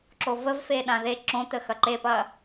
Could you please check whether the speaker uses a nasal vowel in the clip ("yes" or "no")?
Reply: yes